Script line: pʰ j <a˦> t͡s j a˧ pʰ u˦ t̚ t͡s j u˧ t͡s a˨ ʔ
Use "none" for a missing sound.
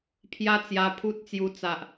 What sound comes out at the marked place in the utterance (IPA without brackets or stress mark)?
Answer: a˦